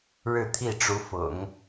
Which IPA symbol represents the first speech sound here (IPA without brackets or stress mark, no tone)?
ɻ